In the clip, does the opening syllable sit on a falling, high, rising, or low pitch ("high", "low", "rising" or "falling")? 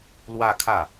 falling